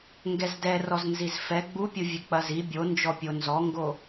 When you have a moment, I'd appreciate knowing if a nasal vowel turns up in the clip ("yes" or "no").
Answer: no